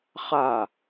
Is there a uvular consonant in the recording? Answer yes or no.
yes